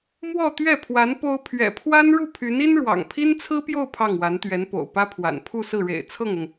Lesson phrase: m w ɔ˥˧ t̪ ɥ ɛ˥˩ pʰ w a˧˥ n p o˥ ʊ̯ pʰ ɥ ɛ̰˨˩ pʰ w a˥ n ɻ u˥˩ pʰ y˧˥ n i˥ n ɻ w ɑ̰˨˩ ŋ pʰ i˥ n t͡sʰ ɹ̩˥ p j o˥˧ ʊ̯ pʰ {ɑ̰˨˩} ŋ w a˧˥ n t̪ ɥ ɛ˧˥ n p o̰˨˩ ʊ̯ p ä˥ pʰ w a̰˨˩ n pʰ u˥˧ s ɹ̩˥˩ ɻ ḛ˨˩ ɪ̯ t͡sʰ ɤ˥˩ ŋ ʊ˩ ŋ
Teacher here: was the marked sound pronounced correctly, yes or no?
no